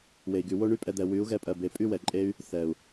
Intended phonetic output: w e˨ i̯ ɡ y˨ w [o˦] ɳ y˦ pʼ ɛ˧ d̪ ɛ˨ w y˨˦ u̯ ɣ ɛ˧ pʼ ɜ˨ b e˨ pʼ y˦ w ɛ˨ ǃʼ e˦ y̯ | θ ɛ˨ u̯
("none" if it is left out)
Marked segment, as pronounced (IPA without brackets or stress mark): o˦